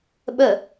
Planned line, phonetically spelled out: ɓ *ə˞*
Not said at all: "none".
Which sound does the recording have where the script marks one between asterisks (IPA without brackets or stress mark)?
ɜ